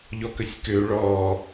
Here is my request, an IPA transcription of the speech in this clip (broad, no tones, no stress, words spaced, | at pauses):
ʎɔkəsʲkø ɭɔ